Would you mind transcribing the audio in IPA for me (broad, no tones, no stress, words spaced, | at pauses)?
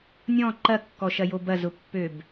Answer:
nʲɔ̃ ǃɐkːɔʃɐjo bɐzʊpːøb